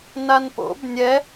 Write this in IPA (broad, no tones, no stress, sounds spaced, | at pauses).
n a n p o̰ b nʲ ɛ